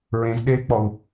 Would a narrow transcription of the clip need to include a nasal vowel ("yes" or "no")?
yes